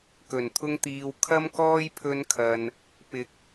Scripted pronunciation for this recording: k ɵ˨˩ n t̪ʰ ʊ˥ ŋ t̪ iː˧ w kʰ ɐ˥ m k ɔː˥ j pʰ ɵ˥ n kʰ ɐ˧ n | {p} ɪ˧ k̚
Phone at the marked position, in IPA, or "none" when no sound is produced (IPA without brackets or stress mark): p